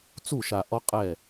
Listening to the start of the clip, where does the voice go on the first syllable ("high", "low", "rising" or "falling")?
falling